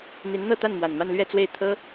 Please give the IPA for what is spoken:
n̪ i˧˥ n n̪ ɤ˥˧ t̪ a˥˩ n m w a˨˩ n m a˥˧ n l ɥ ɛ˥˧ t͡s w e˥˩ ɪ̯ t̪ʰ ɤ˥

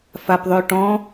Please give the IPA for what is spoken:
f a p ðˤ ø ʈ ɔ̃

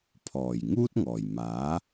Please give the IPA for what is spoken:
pʰ ɔː˨˩ j ŋ uː˥ t̚ ŋ ɔː˨˩ j m aː˨˥

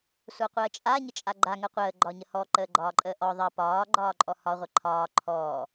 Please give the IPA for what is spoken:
sʷ a qʷ əː t͡ʃʼ a ɲ ə t͡ʃʼ a ɡ͡ǃ a ŋ ə qʷ əː ɡ͡ǃ ɒ ɲ ə h ɔ ǃ əː ɡ͡ǃ ɒː ǃʼ əː ʔ ɔ ðˤ ʌ p ɒː ɡ͡ǃ ɒː ǃʼ ɔ h ɒ ʁʷ ə ǃʰ ɒː ǃʰ ɔː

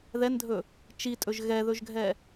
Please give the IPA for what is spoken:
ð ɛ n dʱ ɵ | t͡ʃ i tʼ ɵ ʒ ɣ ɛ ð ɵ ʒ ɡʱ ɛ

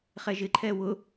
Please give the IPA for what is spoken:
χ ɛ ʒ ɪ ǃʰ ɛ w ʊ

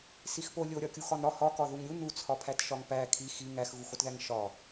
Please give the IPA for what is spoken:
s i x p o lʲ o ɾʲ ɒ kʲ u x ɒ n ɾ ɒ h ɒ k ɒ ð u ŋ ɾʲ u n u t͡sʰ ɒ pʰ æ t ʃ ɒ ŋ p æ kʰ i x i ŋ æ x ɣ u x o t ð æ ŋ ʃ ɒ

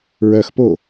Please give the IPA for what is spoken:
ɹ œ x p o

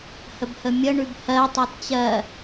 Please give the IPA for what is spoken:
h ə b h ə mʲ ə ɳ ʉ b h ɜ tˤ ɛ t t͡ɕ ɜ

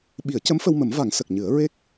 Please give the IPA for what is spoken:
ɓ i˨˩˦ ə̯ c ə˧˥ m f ə˧ w m ə˨˩˦ m v a˨˩˦ ŋ s ə˨˩ k̚ ɲ ɨ˨˩˦ ə̯ ɹ e˦˥ k̚

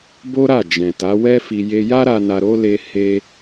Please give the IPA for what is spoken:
b o˦ ɾ a˦˨ d͡ʒ ɛ̃˨ t a˨˦ w ɛ˦ f i˧ j e˧ j a˦ ɾ a˧ n a˧ ɾ o˦ l e˧ h e˦

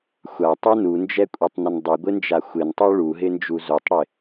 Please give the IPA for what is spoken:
xʷ a tˤ u n u n d͡ʒ ɛ kʷʼ ɛ tˤ n ə n dˤ e ɡʷ ɪ n d͡ʒ a xʷ ɪ n tˤ u ɭ u ɦ ɪ n d͡ʒ u z o tˤ ɽ ɪ

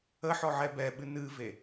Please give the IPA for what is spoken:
ə ħ ɔ ʕ ɛ b ɛ ɓ ɨ n ɨ v e

